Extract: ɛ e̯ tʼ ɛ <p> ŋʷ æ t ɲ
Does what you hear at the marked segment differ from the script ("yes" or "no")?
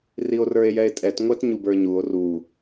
yes